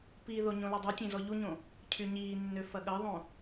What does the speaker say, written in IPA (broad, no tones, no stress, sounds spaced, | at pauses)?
p i ð o ɲ õ l y dˤ u tʲ ẽ z ɔ ʎ u ɲ õ | cʰ y ɲ iː nː ø f ɐ ɠ ɐ ðˤ õ